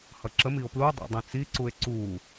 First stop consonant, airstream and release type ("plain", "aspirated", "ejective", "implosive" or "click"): click